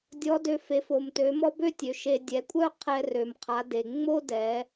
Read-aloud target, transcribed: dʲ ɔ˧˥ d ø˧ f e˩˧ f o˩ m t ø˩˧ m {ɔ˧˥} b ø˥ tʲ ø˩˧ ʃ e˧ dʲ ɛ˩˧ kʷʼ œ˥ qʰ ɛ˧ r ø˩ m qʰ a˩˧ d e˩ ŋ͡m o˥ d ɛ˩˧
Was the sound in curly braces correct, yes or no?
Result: no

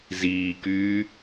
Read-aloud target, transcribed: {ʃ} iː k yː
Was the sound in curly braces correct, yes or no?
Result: no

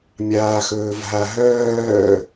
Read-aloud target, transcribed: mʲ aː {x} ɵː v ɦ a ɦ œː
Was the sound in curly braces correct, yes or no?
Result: yes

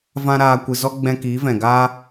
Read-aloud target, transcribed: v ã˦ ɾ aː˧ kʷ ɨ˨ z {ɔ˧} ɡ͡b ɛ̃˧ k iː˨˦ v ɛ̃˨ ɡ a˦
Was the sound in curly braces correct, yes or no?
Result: yes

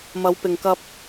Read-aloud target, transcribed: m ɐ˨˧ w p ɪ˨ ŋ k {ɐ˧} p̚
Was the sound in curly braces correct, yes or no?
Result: yes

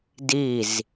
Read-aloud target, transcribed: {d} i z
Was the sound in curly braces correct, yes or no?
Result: yes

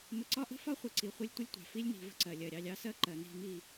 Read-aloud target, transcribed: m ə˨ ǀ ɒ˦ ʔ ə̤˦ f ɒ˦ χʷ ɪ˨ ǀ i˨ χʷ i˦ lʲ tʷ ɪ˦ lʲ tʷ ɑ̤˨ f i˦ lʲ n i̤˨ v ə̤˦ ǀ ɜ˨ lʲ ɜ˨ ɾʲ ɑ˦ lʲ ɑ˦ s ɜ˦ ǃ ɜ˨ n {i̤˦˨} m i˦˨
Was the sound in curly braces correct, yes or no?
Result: yes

